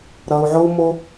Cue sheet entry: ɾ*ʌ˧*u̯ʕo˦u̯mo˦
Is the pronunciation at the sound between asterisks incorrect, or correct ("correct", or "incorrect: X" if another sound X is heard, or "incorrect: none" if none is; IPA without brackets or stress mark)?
correct